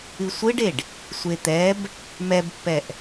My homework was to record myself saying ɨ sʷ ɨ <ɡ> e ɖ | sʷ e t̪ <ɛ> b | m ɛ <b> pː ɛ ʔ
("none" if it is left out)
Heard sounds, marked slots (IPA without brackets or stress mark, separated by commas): ɖ, ɛ, b